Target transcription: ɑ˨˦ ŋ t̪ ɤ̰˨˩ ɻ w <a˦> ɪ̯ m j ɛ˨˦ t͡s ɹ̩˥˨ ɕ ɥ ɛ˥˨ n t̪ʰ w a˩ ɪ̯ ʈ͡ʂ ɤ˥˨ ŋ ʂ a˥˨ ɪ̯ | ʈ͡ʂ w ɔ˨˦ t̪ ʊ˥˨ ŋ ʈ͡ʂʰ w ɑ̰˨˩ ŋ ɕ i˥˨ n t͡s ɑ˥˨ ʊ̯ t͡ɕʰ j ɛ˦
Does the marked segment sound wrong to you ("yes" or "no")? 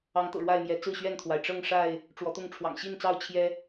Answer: yes